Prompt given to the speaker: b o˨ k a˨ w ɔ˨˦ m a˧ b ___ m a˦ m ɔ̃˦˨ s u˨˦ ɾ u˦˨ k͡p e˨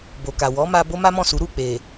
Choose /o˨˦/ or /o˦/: o˦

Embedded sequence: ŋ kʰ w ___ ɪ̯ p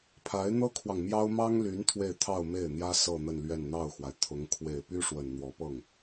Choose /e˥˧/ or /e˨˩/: e˨˩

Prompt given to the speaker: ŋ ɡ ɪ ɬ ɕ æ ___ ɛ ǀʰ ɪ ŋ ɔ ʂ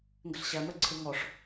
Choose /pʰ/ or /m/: m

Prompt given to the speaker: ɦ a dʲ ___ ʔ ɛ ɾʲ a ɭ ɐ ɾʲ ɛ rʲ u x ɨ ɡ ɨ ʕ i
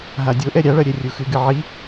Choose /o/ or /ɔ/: o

